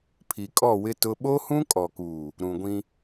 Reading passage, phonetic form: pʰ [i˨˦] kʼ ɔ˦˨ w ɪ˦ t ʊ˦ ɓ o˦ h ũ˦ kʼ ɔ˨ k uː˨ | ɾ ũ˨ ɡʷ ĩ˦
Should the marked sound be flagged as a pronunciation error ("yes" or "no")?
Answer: yes